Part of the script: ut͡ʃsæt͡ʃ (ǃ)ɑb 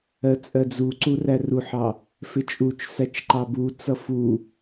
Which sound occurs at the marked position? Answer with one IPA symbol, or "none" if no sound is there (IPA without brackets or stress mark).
ǃ